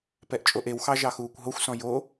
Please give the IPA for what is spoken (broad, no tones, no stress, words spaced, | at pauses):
pɛʔt͡ʃʼoʔewxɑ ʒɑxuːkʷɦoxʷsɔ̃ jo